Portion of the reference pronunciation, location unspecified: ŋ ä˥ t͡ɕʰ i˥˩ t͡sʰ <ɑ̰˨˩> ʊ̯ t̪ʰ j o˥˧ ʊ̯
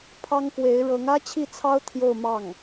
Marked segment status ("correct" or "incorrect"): incorrect